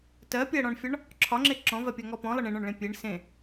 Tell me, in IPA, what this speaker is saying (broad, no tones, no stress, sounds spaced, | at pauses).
t ɜ pʲ ɜ ɽ ɔ̃ ɳ fʲ ɒ ɳ | ǁʰ ɒ ŋ͡ǁ e ǁ ɔ̃ v ɜ pʲ ɜ ŋ ɔ p ɔ̃ lˠ ə ɳ ẽ ɳ ɔ̃ ɳ ɭ ẽ pʲ e ɳ s ẽ